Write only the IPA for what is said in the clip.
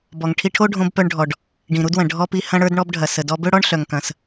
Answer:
bɔ˩ŋʈʰi˧ʈʰo˥ ɖʱõ˧bpœ˧ɳɖʱɔ˩ɖ | ɖĩ˩ɾu˧dwɐ̃˩ ɖʱɔ˧pi˧ hɐ̃˧ɽə˞˧d ɳɔ˧bɖʱɐ˩ sə˩dɔ˧bø˥ɽɔ˥ɳ ɬœ˩ŋkɐ̃˩s

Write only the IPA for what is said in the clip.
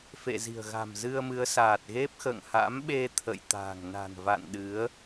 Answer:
fḛ˧˨zi̤˨˩ə̯ ɣa̤˨˩mzɨ˧ə̯mɨ˨˦ə̯ saː˨˩t̚ɣe˦˥p̚xə̰ː˧˨ŋ ha̰˧˥mɓe˧ t̪ʰə̰˧˨jt̪a̤ː˨˩ŋ na̤˨˩nva̰˧˨nɗɨ˨˦ə̯

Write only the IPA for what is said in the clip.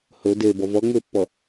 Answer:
hɵ debʌ vʌŋ͡mepːʌ

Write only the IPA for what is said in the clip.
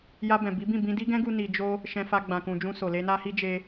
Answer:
ja˧ bɛ̃˨bi˨˦bĩ˦˨ bĩ˧di˦ɡɛ̃˦ɡu˧ ni˧ d͡ʒo˦ | ʃɛ̃˧fa˧ ɡ͡bã˨kũ˨d͡ʒũ˧ so˨le˧ na˧hi˧ d͡ʒe˧

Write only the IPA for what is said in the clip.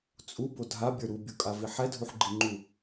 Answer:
t͡sʼubo dʱabʲə˞ ɾubʲukʼavi ħɛdʱuħɡ͡ǃiŋ͡ǃu

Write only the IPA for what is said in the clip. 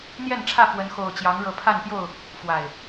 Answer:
n̪jɛ˥˨nʈ͡ʂʰä˥˨ fwə˨˦nxo˨˩ʊ̯t͡ɕjɑ˨˦ŋ ɻɤ˨˦pʰa˥˨npjo˥˨ʊ̯ | fwa˨˩ɪ̯

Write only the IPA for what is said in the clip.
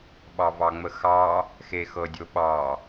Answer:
ɓɑvɑŋ͡məxɑ | xexɤdʲoɓɑ

